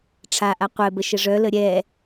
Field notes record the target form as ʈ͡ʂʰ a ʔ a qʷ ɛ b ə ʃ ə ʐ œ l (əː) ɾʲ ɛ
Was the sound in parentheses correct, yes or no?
no